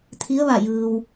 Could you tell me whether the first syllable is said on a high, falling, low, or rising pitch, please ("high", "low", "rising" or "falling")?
rising